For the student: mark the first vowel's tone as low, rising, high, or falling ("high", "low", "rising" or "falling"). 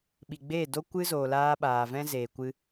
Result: low